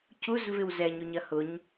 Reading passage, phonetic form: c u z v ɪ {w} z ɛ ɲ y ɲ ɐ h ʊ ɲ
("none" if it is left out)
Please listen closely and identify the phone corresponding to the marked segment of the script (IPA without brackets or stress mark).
w